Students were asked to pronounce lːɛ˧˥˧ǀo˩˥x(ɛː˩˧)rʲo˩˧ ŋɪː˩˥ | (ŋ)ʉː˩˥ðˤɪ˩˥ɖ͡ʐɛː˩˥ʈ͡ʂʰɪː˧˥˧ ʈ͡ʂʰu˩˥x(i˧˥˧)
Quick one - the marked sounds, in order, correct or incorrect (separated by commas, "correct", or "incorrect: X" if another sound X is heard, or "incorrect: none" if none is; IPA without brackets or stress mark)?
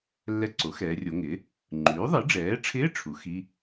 correct, incorrect: ŋ͡ǃ, correct